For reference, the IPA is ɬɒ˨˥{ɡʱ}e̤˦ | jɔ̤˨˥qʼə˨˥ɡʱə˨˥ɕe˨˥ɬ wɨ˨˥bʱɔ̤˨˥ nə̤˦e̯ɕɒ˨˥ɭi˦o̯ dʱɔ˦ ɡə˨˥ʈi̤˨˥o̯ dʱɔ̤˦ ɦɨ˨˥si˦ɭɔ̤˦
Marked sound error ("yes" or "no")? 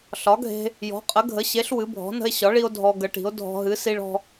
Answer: no